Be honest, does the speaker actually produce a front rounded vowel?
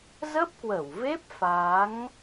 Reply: no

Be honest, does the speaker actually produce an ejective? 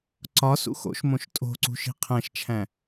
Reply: yes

